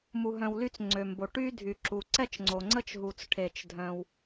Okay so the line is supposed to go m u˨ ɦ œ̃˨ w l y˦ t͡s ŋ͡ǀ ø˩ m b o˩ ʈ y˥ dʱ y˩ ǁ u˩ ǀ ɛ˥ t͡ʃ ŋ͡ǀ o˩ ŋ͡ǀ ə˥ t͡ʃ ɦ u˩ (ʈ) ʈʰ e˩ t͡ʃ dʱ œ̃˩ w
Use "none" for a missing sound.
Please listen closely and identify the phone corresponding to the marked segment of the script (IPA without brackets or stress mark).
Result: t͡s